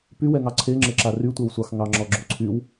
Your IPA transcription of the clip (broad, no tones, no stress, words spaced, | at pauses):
pywɛŋɑ ǀʰeŋ͡ǁɘǁa rytʷɛwsʷɑx ŋɑŋ͡ǁɔɡ͡ǁoǀʰyw